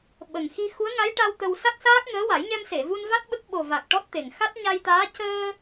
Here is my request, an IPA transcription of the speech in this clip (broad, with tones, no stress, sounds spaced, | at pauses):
ɓ ə˨˩ ŋ x i˧ x u˧˥ ə̯ ŋ a˧˥ j ʈ a˧ w t̪ ə˧ w s a˦˥ k̚ s aː˦˥ k̚ ŋ əː˧˥ w a˨˩˦ j ɲ ɛ˧ m s e˨˩˨ v u˧ n v a˦˥ t̚ ɓ ə˦˥ k̚ ɓ o˨˩ v a˨˩ k̚ ʈ ɔ˦˥ t̚ t̪ e˨˩ ŋ x a˦˥ t̚ ɲ a˧ j t̪ aː˧˥ c əː˧